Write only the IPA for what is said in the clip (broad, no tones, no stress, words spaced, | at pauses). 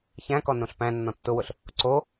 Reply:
çæ̃kɔ nõɬpæ̃nːɔ̃ tːʊwʊɬ | ǀo